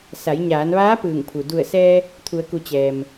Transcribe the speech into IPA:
sa˩˧jɲaː˩˧nʋaː˧˥ pɯː˧˩ŋpʰu˩ du˧˩ə̯ sɛː˧ | t̪ʰu˩˧ə̯ku˩˧ t͡ɕɛː˩m

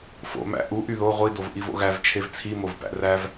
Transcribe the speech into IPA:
fo̰ mæ̰ ʔuʔy ðo ʁʷi dovʔivo̰ɣæv t͡ʃʰevt͡sʰi movpæ̰ræv

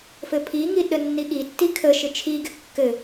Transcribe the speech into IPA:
fɘpʰiŋi ɗənːiɠitːi kʰəʃɪ t͡ʃʰiɡɪ kːɘ

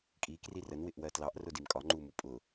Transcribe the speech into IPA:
kʼi krirən wɪʔwɜtlɑʔ rʊdimkʼɒ ŋ͡ǃumupʼʊ

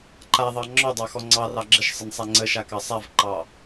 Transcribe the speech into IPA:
ǃaðˤɑ ŋ͡ǁɔdˤɑxɔ ŋ͡ǀɑrɑ ɡ͡ǁəʃsˤənsˤa ŋ͡ǀəʃakɑ sˤavǃɑ

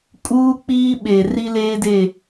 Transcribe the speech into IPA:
kʼuː˦k͡piː˦ɓe˨ ri˦leː˦de˦˨

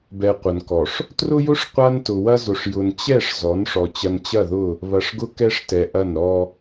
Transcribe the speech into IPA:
bɛ˨ qʷɐ˨nkɔ˨ʂ | trʊ˦jʊ˦ʂ qʷa˦ntʊ˨wɐ˦zʊ˨ʂ jʊ˨nt͡ɕɛ˦˨ʂ zɔ˨˦nʂɔ˨ t͡ɕɐ˨nt͡ɕɐ˦˨ðʊ˦˨ | βɐ˨ʂɡʊ˦ kɛ˦ʂtɛ˨ʔɐ˦˨n ɾɔ˦

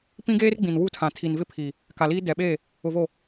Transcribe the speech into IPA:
pĩ˦ɡeː˦rɡ͡bĩ˨n wu˦tʰã˨ tʰi˨nvɪ˦pʰi˨ | ka˨liː˦ dɛ˨ɓe˦˨ | ʊ˨vo˨

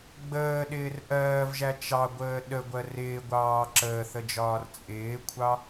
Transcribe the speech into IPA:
ɡ͡bəːɗɪːr ʔɜːvʒæ t͡ʃɑɡʷəː ɗəɡʷɜ rɪːɡʷɑː ǁəːθəd͡ʒɒːr t͡sʼɪːkʷʰɑ

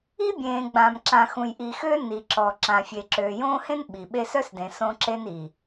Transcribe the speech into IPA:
i˦bʲẽː˨ɡ͡bã˨m ǁã˨xũ˨jʔi˨xø˦ ni˨ǁɔ˨ ǁã˨ fʲe˨ǁøː˨jõː˦hẽ˦n ɓi˨ɓe˦s œ˦sdẽ˨ sõ˦ǁe˦ni˨

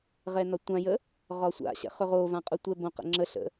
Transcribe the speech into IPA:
ʁɛnɒtʷãjə | ʁɒsʷa̰ɕɛ̰χ ɵʁovã qʼʊtʷɛbõqə̰ ŋ͡ǁəɬə̰

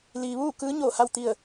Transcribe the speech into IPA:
liː˩ʋuː˥˨ kɯː˧˥ɲoː˧˩ha˥˨w t̪i˥˨ə̯

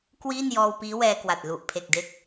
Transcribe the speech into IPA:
kwiː˥˩n jɔː˧wpiː˦˥ wɛː˧kwa˨˩t̚ lu˨˩ʔpʰe˨˩k̚ de˦˥k̚

